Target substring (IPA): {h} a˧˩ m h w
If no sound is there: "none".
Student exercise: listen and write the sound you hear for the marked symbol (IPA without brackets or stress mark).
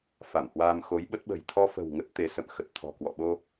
f